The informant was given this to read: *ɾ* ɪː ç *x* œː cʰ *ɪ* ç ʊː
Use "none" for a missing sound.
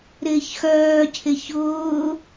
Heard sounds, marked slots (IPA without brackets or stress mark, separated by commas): ɾ, x, ɪ